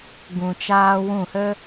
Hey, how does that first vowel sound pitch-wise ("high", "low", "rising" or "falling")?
low